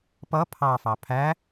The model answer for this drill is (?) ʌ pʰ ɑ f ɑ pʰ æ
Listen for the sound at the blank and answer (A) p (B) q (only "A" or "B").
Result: A